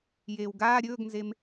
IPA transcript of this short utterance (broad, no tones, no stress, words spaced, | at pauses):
jeːwɡaː ɾʲɵːɡnzem